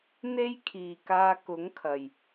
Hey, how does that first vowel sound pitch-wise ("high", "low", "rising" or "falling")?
high